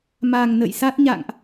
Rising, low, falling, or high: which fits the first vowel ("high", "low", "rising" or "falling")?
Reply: low